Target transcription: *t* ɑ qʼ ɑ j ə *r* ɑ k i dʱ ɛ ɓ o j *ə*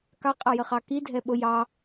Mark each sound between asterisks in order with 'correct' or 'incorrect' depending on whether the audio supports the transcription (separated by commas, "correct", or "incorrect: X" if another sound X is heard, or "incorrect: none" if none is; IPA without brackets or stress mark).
incorrect: k, incorrect: χ, incorrect: ɑ